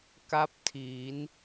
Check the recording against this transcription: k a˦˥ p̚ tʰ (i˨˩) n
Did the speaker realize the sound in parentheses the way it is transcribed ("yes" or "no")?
no